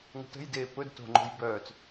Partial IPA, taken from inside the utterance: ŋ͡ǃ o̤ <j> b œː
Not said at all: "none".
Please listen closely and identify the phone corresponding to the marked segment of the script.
j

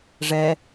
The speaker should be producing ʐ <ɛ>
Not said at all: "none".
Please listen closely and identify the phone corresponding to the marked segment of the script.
ɛ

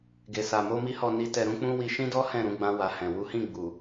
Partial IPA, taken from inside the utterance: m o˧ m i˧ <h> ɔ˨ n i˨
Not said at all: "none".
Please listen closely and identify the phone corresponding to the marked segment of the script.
h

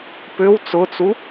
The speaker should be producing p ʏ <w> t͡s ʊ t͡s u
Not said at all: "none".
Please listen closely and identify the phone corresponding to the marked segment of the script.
w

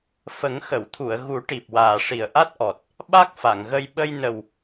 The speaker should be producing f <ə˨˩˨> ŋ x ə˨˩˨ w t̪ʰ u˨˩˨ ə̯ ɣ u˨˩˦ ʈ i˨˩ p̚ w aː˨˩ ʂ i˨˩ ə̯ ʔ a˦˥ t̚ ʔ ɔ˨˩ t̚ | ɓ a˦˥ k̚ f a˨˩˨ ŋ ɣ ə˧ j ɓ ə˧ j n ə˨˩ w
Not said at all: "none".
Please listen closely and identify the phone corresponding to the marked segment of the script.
ə˨˩˦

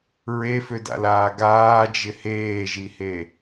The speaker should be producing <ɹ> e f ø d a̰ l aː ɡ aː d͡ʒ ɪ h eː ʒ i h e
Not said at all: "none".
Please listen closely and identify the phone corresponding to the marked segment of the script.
ɹ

